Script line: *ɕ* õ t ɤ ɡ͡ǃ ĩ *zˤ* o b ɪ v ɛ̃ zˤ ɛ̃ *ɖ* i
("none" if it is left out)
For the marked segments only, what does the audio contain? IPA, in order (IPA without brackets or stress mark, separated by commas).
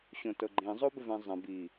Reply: ɕ, zˤ, b